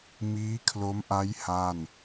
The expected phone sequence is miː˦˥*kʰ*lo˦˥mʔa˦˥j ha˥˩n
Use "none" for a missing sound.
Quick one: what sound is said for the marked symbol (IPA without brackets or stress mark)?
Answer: kʰ